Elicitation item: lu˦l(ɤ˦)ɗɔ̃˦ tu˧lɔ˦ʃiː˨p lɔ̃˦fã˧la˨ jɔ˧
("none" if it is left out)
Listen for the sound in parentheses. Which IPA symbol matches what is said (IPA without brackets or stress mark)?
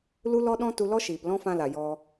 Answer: ɔ˦